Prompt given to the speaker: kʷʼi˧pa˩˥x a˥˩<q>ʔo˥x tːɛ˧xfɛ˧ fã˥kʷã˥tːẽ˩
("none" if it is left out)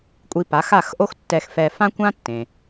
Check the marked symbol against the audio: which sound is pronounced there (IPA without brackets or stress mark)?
x